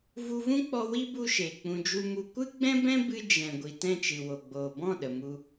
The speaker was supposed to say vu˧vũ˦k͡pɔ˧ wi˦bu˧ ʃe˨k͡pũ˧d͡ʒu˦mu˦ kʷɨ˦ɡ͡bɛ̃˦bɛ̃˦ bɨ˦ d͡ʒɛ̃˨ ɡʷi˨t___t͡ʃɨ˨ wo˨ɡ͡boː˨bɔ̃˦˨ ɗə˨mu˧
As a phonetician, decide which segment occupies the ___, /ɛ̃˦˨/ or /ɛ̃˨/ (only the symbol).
ɛ̃˦˨